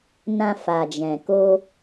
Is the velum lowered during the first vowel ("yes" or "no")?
yes